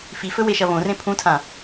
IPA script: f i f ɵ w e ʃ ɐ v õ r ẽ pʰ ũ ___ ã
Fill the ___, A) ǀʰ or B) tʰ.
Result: B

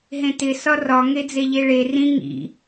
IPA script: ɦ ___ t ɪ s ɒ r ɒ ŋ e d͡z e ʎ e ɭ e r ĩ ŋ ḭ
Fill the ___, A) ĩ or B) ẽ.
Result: B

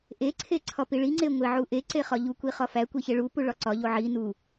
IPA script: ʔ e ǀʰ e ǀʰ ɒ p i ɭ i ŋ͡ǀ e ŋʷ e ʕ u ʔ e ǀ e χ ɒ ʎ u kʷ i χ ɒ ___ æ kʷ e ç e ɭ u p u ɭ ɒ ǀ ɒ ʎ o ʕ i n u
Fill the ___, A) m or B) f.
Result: B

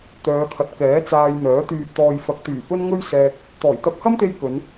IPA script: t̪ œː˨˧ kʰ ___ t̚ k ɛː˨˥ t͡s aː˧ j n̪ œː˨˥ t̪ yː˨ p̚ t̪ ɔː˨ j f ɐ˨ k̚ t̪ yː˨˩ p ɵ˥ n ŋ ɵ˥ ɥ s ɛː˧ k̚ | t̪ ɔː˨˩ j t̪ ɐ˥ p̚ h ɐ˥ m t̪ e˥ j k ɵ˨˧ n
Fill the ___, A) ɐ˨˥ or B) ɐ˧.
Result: A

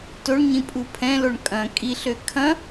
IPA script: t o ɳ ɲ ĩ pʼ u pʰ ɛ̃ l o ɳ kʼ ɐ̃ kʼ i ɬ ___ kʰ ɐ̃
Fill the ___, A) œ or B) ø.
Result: B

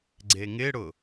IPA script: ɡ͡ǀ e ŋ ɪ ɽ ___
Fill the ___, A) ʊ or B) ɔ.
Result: A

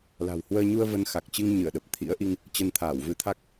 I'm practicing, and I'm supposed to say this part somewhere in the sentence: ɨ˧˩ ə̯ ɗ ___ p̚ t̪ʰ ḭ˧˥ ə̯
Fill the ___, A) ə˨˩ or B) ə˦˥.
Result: A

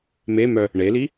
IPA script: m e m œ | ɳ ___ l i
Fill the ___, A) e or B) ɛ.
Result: A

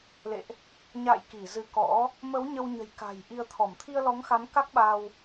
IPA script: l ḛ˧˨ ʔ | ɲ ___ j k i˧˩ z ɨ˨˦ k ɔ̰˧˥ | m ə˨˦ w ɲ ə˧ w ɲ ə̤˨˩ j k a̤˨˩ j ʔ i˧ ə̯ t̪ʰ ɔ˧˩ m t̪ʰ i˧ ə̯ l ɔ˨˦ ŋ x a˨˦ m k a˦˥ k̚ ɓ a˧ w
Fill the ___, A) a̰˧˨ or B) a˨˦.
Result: A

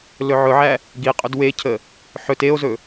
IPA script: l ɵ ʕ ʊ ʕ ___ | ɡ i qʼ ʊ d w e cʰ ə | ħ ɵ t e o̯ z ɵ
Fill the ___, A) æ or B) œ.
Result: A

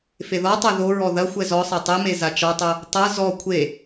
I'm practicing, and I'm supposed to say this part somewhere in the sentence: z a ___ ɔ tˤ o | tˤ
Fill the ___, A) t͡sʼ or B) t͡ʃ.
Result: B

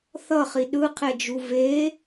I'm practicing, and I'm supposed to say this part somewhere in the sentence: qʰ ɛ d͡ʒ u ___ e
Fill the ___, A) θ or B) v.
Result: B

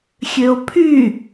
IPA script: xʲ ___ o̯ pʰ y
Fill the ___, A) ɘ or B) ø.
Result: B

